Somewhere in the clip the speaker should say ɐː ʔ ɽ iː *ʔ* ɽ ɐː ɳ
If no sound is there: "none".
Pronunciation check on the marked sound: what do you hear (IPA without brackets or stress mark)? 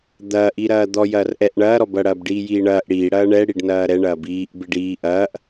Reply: none